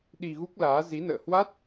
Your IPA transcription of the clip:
ɗ i˧ ɣ u˦˥ k̚ l aː˨˦ z i˨˦ n ə̰ː˧˨ h w a˦˥ t̚

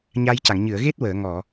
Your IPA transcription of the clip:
ɲ a˧ j c a˨˩˨ ŋ ɲ ɨ˨˩˨ ə̯ ɣ e˦˥ t̚ w əː˨˩˨ ŋ ɔ˨˩˨

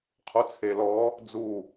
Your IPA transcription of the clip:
qʰ u t͡sʰ e l ɔ | d͡z u

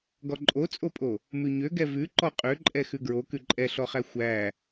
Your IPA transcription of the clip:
ɡ ɔ ǃʼ o t͡sʼ o pʼ o | m ʉ ɲ ø ɡ ɛ v ʉ ǃ ɔ qʼ ø ǃʼ ɛ x ʉ ɡ ɹ o k ʉ ǃʼ ɛ ɬ ɔ χ æ xʷ æ

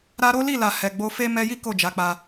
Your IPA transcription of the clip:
ɾ a˧ ɾ o˦ l i˦˨ l a˨ h ɛ˨ ɡ͡b o˧ f e˦ m ɛ˧ j i˦ k o˦˨ d͡ʒ a˨˦ k͡p a˧

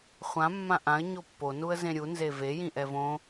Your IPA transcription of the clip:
χʷ ã mː ã ʔ ã ə̯ ɲ o pː o n u ə̯ z ẽ ɾʲ u n z e v e j ĩ ʔ ɛ v õ

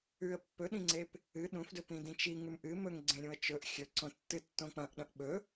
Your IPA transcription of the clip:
ʉ ə̯ pː ɵ ɗ ĩ ŋ͡ǀ e p | ɨ ɗ ũ f d ɵ p ĩ d ĩ t͡ʃ i ŋ ʉ m ʔ ɨ m ɵ ŋ ɡ͡ǀ ẽ ɾʲ ũ ə̯ t͡ʃ ɵ ʔ xʲ ɵ ǀ õ tː ɨ tː õ k͡p ɐ̃ ʔ ɗ ɐ̃ ʔ ɓ ɵ

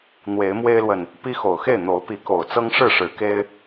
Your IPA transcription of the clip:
n̪ w e˨˦ ɪ̯ m w e˦ ɪ̯ l w ə˨ n | p i˦ x o˨˩ ʊ̯ x e˥˨ ɪ̯ n̪ o˨˦ ʊ̯ p i˨˦ k o˨˩ ʊ̯ t͡s ɤ˦ ŋ ʂ ɻ̩˥˨ ʂ ɻ̩˨˦ k e˦ ɪ̯

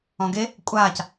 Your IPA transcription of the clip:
ɔ̃ ɡ e | kʷʼ aː c

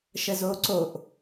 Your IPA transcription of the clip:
ʃ ə z oː ǀ o ʔ

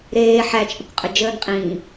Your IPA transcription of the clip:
ɾ eː ħ æ t͡ʃʼ ə kʷ qʼ ə d͡ʒ əː n qʼ ĩː

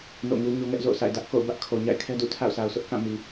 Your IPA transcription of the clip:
n o̰˦˨ ŋ u˦ ɲ o˦ ŋ ɛ˦ ʔ z o̰˦˨ ʊ̯ sʰ a̰˦˨ ɪ̯ d ä˦ ʔ k o̰˦˨ ʊ̯ b ä˦ ʔ kʰ o˨ ɲ a̰˦˨ ɪ̯ kʰ ɛ˦ d ṵ˦˨ tʰ a̰˦˨ ʊ̯ sʰ a˨ ʊ̯ s ʊ˦ ʔ k ã˦˨ m i˨

